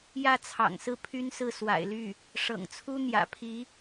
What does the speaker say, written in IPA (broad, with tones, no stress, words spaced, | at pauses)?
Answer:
jä˥˩t͡sʰɑ̰˨˩ŋsɹ̩˥˩ pʰy˥nsɹ̩˥˩ swa̰˨˩ɪ̯ly˥˩ | ʂɤ̰˨˩ŋt͡sʰu˥ n̪jä̰˨˩pʰi˧˥